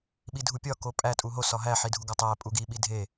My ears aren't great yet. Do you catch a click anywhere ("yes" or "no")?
no